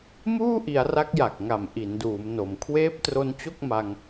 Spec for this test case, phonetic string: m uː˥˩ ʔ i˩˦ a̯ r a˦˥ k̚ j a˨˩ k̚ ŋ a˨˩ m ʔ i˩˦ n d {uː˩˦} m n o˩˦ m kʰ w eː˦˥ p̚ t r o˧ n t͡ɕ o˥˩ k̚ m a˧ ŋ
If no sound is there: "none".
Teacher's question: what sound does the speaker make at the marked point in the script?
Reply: uː˩˦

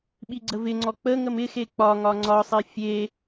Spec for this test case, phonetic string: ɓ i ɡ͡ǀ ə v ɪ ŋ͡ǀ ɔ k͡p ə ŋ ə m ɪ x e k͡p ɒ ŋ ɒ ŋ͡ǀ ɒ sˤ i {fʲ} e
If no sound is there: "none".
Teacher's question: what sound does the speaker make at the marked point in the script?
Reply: fʲ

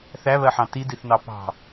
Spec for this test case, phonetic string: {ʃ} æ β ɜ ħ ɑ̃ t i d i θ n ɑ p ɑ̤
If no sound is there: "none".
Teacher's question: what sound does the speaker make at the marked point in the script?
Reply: θ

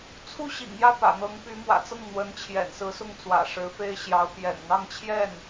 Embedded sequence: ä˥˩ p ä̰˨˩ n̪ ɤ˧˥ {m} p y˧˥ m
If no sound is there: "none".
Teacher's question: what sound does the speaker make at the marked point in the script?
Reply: ŋ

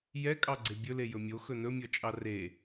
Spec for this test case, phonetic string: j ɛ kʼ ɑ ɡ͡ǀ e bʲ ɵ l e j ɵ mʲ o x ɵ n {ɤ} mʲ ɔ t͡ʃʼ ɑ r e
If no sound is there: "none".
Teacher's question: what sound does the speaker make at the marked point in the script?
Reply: ɵ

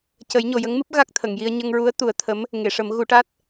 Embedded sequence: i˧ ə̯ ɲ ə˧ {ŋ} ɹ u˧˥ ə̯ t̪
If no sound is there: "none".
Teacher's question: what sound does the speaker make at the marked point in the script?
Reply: ŋ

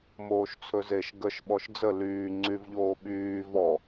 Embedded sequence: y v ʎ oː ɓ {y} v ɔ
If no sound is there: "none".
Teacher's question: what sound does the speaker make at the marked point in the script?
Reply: yː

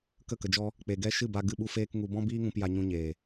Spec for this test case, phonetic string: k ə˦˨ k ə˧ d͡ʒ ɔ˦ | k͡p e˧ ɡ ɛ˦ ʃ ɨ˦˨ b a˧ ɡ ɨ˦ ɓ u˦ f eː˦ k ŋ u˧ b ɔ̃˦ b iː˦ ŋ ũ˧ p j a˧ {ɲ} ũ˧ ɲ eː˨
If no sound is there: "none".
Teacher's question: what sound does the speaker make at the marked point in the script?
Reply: ɲ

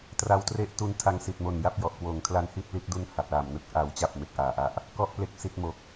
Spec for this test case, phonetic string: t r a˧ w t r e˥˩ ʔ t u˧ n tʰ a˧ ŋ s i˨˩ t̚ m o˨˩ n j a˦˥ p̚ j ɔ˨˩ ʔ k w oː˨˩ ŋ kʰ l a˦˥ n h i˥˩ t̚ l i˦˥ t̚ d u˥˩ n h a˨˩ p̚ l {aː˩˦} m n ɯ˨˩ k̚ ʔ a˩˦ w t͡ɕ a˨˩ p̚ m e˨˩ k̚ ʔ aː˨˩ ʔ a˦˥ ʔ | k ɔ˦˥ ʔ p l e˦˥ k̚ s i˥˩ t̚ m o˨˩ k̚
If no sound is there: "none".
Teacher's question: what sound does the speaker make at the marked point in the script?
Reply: aː˨˩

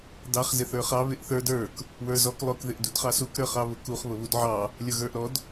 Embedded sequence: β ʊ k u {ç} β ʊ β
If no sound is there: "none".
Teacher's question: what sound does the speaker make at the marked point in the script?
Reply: χ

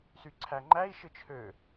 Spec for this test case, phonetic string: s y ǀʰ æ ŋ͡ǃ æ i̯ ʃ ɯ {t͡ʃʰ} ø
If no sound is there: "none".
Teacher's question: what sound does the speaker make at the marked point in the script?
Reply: t͡ʃʰ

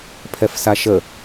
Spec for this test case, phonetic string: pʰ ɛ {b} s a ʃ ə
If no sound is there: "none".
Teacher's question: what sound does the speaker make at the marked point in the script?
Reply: f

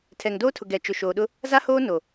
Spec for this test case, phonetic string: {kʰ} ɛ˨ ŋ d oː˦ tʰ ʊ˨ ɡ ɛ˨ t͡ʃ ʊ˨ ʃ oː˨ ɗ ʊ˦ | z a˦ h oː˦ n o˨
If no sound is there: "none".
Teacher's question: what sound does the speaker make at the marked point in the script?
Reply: tʰ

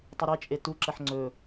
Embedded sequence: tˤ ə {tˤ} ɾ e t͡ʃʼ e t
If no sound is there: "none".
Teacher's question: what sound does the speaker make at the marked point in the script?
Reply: none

